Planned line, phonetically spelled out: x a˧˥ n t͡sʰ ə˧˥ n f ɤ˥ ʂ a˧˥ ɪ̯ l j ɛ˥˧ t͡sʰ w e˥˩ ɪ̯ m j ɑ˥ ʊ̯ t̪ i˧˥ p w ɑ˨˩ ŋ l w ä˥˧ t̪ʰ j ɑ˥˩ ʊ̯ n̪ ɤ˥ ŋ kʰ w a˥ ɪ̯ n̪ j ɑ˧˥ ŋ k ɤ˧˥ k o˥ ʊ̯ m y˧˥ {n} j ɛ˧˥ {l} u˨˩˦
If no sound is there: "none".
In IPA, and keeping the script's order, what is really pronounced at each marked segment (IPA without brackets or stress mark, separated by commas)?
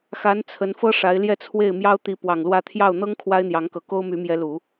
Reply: m, l